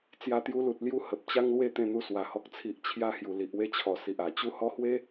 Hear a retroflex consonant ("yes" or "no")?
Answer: no